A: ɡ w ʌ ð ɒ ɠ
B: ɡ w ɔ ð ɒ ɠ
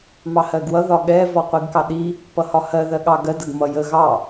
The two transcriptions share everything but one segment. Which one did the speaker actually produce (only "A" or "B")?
A